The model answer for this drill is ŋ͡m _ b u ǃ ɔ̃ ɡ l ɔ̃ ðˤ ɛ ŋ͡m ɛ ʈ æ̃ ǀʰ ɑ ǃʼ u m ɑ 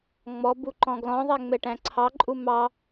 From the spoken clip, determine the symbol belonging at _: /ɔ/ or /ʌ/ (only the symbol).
ɔ